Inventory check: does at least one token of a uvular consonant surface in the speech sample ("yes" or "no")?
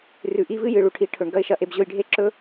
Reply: no